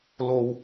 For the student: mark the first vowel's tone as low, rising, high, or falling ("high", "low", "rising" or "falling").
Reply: low